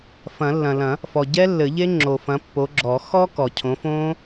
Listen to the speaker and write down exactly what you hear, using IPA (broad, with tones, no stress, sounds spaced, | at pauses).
f ɐ̃˨˩˦ lː ɐ̃˨ l ɐ̃˨˩˦ | f ɔ˨ ɟ ɛ˦˥ lː ɘ˨˩˦ ʎ e˦˥ ŋ͡ǁ o˨ f ɐ̃˨˦ pː o˨˦ ɡ͡ǁ ɔ˨˩˦ x ɔ˦˥ k ɔ˨ cʰ õ˨˦ f õː˦˥